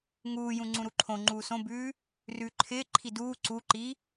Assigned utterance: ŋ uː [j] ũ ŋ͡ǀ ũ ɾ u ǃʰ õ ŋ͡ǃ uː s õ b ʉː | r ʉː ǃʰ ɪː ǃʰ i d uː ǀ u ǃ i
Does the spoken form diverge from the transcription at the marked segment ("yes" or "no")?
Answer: no